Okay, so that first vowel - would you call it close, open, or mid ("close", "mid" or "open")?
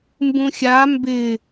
close